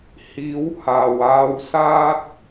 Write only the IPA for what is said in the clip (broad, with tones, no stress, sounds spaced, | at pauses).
h iː˨˥ w h aː˨ w aː˧ w s aː˥ t̚